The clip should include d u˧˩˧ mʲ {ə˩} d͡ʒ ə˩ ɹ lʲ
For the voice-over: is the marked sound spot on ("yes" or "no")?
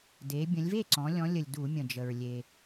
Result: no